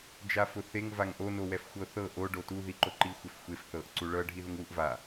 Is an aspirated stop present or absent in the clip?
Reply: absent